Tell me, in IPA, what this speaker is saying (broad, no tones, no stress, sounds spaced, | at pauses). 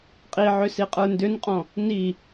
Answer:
qʼ i ʕ ʏ s i qʼ ə˞ n d ʏ n qʼ ɔ̃ | n i